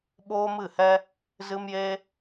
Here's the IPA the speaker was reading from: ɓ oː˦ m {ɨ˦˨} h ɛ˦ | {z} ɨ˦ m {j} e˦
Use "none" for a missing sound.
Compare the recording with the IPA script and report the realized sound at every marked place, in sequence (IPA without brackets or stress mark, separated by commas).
ɨ˦˨, z, j